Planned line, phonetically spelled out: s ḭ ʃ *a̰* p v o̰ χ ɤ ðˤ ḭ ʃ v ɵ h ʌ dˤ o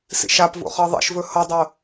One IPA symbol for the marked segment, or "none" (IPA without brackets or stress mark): a